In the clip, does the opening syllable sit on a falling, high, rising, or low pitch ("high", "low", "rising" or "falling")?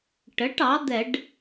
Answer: rising